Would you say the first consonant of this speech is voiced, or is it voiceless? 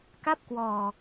voiceless